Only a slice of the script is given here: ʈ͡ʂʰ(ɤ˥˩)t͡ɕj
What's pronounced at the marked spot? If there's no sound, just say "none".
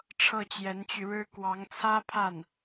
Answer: ɤ˥˩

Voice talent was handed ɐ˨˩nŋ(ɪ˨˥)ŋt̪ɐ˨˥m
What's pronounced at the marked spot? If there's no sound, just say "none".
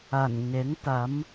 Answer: ɪ˨˥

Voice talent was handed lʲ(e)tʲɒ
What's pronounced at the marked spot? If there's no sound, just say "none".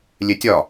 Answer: e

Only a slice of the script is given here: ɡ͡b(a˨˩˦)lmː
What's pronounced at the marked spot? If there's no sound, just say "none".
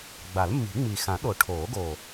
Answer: a˨˩˦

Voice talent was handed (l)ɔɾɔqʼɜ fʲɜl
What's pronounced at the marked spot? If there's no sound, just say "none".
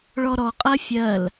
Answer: ɭ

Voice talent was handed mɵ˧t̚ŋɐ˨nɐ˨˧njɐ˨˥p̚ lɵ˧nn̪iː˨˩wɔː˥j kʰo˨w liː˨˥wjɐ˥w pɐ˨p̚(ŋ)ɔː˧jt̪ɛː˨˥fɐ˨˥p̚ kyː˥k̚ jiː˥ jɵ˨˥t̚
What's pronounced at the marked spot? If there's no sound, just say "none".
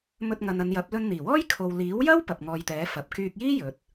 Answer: ŋ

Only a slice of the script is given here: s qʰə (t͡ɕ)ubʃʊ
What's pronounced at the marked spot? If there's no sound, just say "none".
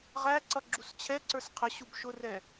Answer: ɕ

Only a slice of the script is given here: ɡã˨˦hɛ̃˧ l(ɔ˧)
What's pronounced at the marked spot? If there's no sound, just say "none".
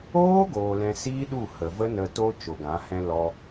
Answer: ɔ˧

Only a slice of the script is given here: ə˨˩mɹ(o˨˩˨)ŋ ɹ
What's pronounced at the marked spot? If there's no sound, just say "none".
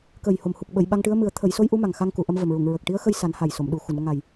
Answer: u˨˩˨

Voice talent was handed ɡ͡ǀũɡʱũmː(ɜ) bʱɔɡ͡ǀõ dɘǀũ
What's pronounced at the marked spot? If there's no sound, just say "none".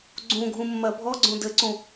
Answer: ɜ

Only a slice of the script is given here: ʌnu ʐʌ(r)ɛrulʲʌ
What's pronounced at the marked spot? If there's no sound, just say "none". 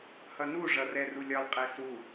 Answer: r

